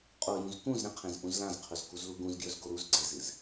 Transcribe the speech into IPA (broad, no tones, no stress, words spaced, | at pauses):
qʼojũz kũzɾẽqʰẽz ʔũzlãzqʰɵz kuzluɡũzɡjɵz ɡoɾuz ɡ͡ǀezɨz